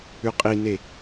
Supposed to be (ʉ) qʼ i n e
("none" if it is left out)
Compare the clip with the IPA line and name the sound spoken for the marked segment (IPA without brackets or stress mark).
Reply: ʉ